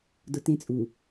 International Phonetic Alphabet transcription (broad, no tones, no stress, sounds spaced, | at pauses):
d ʊ t ẽ t͡sʼ u